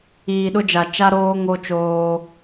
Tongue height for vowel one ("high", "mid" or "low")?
high